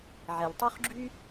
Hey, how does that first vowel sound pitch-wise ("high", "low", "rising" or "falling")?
low